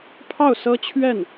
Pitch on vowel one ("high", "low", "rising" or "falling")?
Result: falling